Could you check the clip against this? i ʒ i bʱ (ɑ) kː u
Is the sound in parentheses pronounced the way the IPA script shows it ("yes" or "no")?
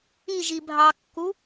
yes